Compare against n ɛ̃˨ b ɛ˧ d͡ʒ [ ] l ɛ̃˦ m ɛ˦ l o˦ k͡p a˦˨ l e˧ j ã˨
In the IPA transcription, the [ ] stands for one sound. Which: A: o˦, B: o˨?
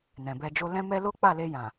A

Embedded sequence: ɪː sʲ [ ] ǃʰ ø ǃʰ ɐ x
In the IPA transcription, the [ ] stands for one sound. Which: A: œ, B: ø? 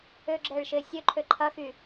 B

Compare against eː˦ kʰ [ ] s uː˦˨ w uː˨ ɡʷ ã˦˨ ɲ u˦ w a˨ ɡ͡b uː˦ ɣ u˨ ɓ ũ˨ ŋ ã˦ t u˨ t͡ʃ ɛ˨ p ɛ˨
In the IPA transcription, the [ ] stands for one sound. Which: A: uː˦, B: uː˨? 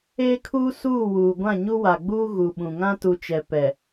A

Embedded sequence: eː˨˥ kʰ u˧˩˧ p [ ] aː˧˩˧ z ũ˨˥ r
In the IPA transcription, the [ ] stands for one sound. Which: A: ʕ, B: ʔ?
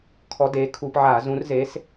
A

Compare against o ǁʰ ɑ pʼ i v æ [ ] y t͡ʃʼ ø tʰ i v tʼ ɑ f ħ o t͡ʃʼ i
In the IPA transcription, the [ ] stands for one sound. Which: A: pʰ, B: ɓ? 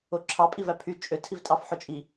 A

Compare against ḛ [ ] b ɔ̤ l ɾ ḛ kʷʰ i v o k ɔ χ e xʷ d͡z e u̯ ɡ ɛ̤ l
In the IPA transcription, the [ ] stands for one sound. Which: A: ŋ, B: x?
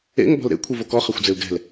A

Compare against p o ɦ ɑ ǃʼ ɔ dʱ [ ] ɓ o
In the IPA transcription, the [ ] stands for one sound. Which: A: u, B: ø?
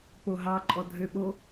B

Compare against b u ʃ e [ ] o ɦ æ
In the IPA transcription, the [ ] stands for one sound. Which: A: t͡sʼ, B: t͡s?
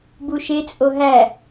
A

